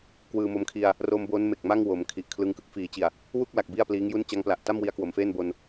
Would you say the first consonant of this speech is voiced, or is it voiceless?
voiceless